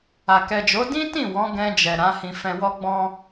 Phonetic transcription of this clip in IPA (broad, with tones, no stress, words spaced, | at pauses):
a˨ kɛ˨ d͡ʒo˨˦ dĩ˦tĩ˦˨ wɔ̃˨˦ɡɛ̃˧d͡ʒɛ˨ ɾã˨˦hĩ˧ fɛ̃˧wɔ˦ɡ͡bɔ̃˦